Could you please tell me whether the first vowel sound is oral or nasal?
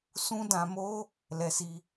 nasal